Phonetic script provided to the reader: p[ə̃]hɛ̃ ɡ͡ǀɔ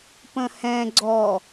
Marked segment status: correct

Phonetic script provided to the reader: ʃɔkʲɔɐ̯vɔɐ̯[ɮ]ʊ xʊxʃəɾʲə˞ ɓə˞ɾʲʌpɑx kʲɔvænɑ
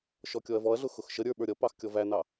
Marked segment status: correct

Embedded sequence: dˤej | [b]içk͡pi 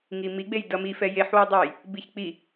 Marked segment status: correct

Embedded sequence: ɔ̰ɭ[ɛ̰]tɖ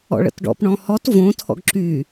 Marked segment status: incorrect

